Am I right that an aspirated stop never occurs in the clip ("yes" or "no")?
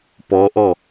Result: yes